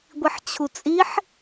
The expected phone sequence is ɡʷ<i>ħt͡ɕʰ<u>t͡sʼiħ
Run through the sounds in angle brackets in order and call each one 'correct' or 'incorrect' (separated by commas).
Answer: correct, correct